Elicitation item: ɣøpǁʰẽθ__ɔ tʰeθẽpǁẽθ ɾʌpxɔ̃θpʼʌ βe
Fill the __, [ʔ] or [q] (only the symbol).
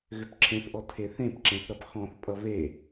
ʔ